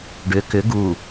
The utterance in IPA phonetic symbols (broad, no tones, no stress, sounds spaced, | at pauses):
ɖ ʏ k ʏ ɡ u